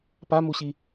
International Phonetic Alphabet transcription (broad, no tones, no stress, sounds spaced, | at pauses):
p a m u ɕ i